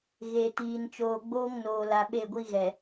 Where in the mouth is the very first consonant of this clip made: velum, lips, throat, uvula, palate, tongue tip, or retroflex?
velum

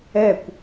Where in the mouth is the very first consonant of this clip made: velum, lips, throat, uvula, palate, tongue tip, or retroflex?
velum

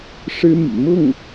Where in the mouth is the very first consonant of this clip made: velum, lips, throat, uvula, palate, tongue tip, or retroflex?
retroflex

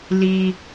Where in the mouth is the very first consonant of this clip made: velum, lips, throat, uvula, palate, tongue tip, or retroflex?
tongue tip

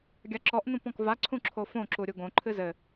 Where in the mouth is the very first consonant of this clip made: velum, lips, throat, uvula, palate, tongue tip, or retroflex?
velum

